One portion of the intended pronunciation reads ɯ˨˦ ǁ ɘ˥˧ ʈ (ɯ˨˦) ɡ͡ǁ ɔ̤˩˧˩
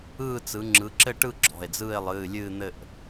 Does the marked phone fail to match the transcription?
yes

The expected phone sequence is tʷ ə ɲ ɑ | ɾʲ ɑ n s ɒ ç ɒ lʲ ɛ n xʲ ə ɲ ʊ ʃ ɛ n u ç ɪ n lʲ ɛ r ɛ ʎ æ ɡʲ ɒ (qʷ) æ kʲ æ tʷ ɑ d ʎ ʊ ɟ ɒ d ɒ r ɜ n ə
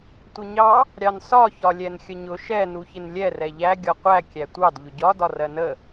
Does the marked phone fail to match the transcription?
no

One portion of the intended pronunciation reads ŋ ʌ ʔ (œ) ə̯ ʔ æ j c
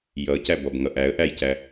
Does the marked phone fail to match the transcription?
yes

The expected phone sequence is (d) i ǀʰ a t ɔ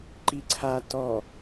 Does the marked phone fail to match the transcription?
yes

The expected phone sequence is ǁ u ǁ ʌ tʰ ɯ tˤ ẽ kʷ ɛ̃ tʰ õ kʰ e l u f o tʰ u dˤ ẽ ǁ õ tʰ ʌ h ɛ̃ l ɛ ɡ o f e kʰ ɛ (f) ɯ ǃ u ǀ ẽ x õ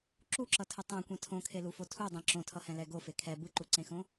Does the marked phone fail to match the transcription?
yes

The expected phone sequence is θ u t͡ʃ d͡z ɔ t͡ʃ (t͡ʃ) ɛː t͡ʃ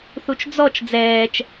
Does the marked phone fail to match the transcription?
yes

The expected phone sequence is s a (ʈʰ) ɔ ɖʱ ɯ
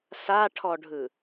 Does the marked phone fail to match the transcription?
no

